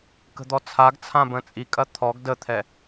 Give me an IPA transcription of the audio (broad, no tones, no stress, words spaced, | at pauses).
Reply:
kə̤d̪ɔt͡sʰaɡt͡sʰã bə̃t͡sʼikʼɐ t̪ʰɔɡ dət̪ʰɛ